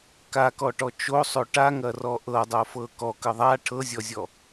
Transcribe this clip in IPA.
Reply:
k a k ɔ ʈ ɔ t͡ʃ o sˤ o ʈ a ŋ ɐ r ɔ ʔ ɤ dˤ o f ɤ k ɔ k ə ðˤ a ʈʰ ɤ zʲ ɔ zʲ ɔ

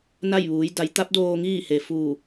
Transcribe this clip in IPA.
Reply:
n a˥˨ j ʋ uː˩˧ j d a˩˧ j t̪ a˧˥ p̚ d oː˧ ŋ iː˥˨ h e˩ f uː˧˩

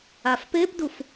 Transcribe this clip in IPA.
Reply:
a f p e p d u f

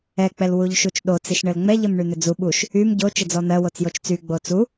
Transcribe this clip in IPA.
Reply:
ɛ k͡p ɛ l w u ʎ ʃ u t͡ʃ ɗ o t͡s i ʃ ɳ ɘ l ŋ͡m ɛ ʎ ɘ m ɳ y n̪ ʏ d͡z u ɓ u ʃ | y m ɟ o t͡ʃ ɘ d͡z ɔ n̪ ɜ w o t͡s j o t͡ʃ t͡s y ɡ͡b o t͡s u

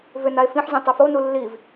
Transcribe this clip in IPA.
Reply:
v ʏ n a e̯ f ĩ ħ zʲ õ tˤ ʏ f o n u lː i v

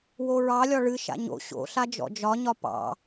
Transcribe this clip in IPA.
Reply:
w o ɹ ɑ lʲ ɒ ɭ ɨ ʃ a̰ ɲ o̰ ɕ o̰ ɬ a d͡ʒ ɔ̰ d͡ʒ ɒ ɲ ɒ p ɑ̰

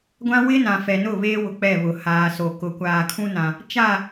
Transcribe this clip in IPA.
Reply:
ɡʷ ã˦ w ɪ˦ n ã˨ f ɛ˨ n ʊ˦˨ β eː˦ w ʊ˨ k͡p ɛ˦˨ β ʊ˨ h aː˨ s o˨ k ʊ˨ kʷ aː˨ kʰ ũ˦ n ã˨ | t͡ʃ a˦˨

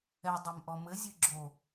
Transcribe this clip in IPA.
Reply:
ɛ dˤ ɛ m ʔ ɔ m ɘ zʲ ɨ ɡ͡ǁ o

